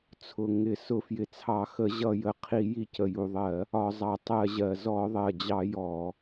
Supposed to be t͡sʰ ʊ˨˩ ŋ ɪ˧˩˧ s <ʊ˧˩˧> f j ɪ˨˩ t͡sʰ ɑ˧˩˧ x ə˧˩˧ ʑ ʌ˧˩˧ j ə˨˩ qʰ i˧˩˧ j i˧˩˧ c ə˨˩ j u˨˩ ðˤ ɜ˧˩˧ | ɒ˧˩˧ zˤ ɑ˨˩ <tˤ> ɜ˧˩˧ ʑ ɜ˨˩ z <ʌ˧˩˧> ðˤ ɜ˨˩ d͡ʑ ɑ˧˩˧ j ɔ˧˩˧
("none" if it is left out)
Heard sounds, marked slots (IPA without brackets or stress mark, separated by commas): ʊ˧˩˧, tˤ, ɔ˧˩˧